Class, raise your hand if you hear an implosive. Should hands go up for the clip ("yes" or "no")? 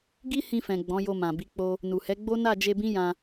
no